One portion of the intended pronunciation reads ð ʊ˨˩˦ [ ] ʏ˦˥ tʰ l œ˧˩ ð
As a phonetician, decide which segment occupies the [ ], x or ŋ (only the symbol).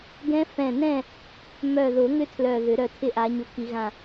ŋ